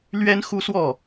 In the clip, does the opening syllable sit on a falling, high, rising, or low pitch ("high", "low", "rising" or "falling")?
high